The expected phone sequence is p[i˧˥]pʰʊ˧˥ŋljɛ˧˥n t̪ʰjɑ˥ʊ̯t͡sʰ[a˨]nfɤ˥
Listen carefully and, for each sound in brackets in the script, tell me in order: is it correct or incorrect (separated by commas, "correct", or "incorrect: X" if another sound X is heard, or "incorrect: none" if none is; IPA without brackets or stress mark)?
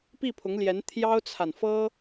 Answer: incorrect: i˥˩, correct